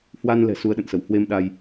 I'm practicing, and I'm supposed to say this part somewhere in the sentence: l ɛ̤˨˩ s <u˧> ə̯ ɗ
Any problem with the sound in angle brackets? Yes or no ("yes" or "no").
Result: no